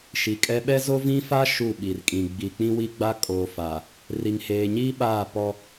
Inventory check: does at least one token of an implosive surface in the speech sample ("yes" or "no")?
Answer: yes